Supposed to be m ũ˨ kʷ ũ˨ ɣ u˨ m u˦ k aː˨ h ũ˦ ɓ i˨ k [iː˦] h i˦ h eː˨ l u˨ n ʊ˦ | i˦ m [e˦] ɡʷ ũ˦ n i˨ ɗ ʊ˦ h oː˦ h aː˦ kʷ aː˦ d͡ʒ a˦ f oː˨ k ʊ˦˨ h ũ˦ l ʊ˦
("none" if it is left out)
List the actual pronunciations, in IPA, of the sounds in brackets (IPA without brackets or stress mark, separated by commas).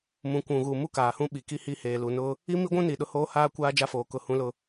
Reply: i˦, i˦